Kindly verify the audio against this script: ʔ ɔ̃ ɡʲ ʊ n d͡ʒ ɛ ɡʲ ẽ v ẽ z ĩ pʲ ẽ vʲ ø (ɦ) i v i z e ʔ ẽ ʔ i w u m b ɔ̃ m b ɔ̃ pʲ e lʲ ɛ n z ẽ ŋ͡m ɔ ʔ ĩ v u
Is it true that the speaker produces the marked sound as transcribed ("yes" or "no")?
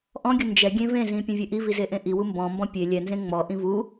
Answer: no